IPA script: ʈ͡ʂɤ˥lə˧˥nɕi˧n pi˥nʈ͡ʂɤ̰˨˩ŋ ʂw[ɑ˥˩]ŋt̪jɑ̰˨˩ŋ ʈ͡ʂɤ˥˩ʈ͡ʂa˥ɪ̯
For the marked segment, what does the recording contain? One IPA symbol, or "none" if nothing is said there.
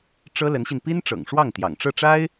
ɑ˥˩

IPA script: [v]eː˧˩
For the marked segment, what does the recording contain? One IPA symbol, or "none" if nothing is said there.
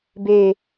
b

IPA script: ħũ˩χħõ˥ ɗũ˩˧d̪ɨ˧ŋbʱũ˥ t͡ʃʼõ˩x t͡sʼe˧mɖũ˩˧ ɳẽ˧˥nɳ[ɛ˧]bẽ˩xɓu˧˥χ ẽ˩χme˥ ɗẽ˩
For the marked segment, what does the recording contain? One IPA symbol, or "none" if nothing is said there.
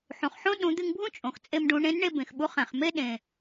e˧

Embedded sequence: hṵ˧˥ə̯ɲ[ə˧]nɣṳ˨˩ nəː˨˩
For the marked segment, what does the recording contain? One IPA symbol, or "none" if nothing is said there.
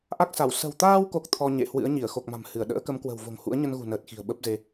ə˧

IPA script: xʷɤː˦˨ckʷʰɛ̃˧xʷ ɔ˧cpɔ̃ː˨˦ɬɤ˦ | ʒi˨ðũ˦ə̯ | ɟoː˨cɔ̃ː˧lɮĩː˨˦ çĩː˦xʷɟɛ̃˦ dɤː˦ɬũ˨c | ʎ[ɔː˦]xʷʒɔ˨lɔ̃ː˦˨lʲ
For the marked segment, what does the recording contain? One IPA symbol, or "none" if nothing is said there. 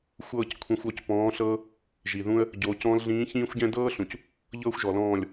ɤː˦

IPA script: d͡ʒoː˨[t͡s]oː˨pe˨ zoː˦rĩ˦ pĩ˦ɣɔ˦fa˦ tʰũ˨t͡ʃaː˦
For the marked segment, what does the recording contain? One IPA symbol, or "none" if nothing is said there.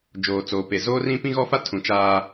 t͡s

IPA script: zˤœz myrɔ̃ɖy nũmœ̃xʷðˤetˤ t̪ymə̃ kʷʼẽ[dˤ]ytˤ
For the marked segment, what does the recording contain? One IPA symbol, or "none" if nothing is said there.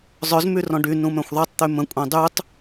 dˤ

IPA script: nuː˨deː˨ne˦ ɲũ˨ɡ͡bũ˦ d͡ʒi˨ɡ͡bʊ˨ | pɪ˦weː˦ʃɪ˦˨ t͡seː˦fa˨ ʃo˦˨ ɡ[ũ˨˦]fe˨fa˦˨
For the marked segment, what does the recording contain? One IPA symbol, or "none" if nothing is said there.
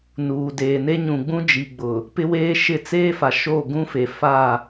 ũ˦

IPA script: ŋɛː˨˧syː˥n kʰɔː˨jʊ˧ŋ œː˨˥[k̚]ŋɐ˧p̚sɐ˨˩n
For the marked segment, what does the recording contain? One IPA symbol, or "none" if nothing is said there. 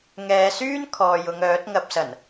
t̚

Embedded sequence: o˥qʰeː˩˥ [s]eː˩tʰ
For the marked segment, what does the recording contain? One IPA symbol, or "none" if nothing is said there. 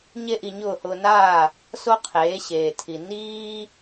ɕ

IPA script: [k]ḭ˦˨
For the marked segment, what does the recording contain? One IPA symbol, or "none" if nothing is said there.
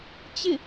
t͡ɕ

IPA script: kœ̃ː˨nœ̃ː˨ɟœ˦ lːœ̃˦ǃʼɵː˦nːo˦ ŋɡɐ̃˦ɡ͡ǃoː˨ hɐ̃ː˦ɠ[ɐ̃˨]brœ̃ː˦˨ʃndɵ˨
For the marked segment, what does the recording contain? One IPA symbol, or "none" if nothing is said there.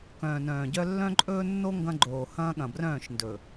ɐ̃˨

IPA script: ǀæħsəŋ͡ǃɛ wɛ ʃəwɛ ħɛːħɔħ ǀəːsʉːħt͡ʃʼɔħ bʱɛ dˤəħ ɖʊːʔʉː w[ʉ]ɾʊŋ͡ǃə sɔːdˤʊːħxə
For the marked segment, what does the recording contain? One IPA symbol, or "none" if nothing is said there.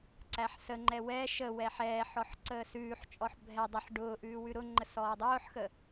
ʉ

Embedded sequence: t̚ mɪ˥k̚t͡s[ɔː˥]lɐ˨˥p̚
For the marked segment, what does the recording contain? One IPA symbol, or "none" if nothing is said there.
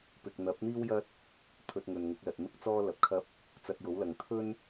ɔː˥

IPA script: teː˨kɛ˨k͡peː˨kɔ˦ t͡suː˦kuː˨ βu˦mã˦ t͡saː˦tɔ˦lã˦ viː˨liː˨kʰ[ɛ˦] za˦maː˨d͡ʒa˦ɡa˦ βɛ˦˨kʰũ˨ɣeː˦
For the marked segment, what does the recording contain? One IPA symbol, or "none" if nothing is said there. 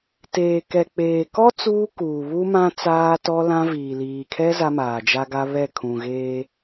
ɛ˦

